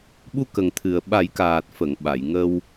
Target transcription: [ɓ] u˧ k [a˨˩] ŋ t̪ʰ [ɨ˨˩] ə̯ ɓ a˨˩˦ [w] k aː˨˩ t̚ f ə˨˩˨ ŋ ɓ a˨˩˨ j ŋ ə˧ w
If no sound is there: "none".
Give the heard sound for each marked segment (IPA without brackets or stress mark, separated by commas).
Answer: ɓ, ə˨˩, ɨ˨˩, j